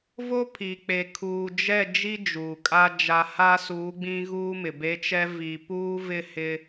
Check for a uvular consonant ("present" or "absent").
absent